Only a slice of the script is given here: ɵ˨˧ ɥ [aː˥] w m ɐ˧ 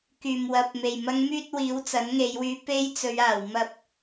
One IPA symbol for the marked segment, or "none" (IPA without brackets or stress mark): aː˨˩